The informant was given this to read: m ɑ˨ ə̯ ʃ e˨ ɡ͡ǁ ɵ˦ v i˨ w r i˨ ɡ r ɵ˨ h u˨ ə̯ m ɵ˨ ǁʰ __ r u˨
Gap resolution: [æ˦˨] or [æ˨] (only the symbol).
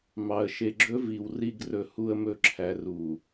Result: æ˨